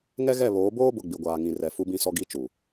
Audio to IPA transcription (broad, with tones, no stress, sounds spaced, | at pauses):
ŋ ɛ˦ ɣ ɛ˦˨ β oː˨˦ b oː˦ b ʊ˨ ɡ͡b i˨ ɡʷ aː˨ ŋ ĩ˨ r ɛ˨ f u˨ b ĩ˨ s ɔ˨ ɡ i˨˦ t͡ʃ u˨